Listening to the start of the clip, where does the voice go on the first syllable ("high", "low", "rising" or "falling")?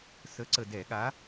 rising